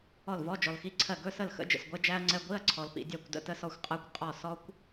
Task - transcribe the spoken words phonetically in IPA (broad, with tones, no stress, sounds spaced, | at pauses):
ɔ˥˩ l v ɔ˧˥˧ d͡ʒ ɔ˨ l x i˧˥˧ ǀʰ ɜ˥˩ ɡ ɵ˧˥˧ s ə˥˩ l x ə̰˧˥˧ d͡ʒ ə̰˥˩ s ɡʷ ɛ˦˥ d͡ʒ æ˦˥ ɐ̯ ŋ͡ǀ ɛ˧˥˧ ɡʷ i˧˥˧ ɐ̯ ǀʰ ɔ˨ l p ḭ˨ dʲ æ˥˩ kʷ d ə̰˦˥ t ə˧˥˧ s ɔ˥˩ xʷ qʼ ɜ˦˥ kʷ qʼ ɔ˥˩ s ɔ˦˥ kʷ